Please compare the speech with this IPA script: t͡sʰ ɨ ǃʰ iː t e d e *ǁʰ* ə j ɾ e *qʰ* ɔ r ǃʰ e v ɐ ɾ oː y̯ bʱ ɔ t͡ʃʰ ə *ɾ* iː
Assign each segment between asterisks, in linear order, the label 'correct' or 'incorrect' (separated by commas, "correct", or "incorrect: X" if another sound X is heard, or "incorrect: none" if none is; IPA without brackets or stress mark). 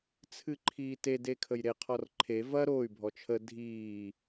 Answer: incorrect: kʰ, correct, incorrect: dʱ